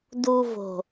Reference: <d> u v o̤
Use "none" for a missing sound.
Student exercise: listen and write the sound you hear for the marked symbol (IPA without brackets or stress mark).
d